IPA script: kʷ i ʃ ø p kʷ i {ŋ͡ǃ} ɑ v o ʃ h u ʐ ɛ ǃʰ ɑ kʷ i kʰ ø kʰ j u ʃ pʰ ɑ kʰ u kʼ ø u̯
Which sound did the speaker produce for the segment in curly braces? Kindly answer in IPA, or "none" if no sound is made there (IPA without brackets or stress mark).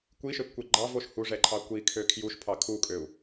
ɡ͡ǃ